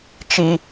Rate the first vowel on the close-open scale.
close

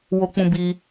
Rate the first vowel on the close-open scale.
mid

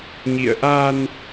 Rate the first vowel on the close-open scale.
close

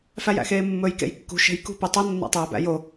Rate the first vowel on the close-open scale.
open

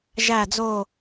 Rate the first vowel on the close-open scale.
open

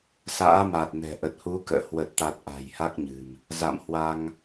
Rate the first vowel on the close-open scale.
open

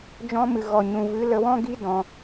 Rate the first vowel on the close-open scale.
mid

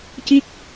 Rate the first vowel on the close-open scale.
close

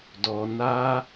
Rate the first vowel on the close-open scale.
mid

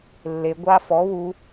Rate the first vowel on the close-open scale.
mid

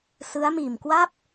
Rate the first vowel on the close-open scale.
close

